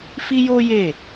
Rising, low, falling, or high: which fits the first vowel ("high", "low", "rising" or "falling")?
high